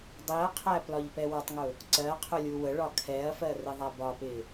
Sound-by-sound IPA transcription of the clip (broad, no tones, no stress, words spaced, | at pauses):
dˤiɐ̯qʰæ plɒʎpɛwɒtˤŋʊ | ǀɜ qʰʊlʲuwəɭɒ kʰɛɐ̯fɜ rɪðˤæbɒpɪ